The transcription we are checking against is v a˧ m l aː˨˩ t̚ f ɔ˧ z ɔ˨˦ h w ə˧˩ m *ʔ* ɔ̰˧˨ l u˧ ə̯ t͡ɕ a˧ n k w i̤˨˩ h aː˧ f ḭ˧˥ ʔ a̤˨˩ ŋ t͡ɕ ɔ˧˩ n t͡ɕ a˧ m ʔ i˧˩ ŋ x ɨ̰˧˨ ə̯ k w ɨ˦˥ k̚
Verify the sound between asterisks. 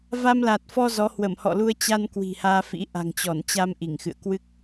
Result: incorrect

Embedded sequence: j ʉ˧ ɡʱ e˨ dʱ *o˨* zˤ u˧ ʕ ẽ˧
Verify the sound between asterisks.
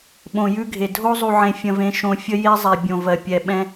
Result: incorrect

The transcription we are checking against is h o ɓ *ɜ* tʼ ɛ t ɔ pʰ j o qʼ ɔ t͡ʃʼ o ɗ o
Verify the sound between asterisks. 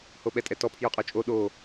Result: incorrect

